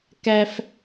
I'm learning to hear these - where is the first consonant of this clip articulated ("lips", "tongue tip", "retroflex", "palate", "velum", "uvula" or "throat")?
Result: velum